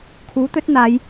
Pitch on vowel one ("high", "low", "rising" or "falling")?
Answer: rising